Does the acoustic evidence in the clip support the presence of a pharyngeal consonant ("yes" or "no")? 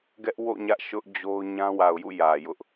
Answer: no